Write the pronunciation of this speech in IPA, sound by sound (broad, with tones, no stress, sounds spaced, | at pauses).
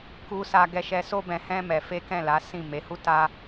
k u˧ s a˧ ɡ ɛ˧ ʃ ɛ˧ s o˦ b ɛ̃˧ h ɛ̃˦ m ɛ˧ f e˦ k ɛ̃˦˨ l a˨˦ s ĩ˦˨ m e˨˦ h u˦ t a˦